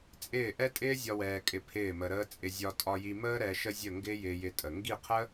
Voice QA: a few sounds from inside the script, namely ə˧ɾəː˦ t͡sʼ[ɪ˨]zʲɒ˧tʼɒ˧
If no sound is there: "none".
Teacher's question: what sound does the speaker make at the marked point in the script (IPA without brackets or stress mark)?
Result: ɪ˧